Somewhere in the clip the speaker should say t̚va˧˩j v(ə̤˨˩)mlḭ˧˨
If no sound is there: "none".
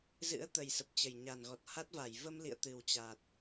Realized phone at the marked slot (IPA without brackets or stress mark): ə˧